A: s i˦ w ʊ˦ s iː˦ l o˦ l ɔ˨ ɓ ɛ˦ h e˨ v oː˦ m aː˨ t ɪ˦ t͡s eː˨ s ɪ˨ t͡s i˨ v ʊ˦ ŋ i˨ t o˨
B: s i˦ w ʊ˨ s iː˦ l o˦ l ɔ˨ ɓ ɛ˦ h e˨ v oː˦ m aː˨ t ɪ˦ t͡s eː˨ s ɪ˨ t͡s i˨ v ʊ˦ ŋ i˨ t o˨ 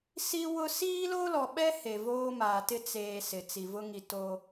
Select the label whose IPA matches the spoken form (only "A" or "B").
A